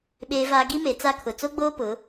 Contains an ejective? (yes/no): no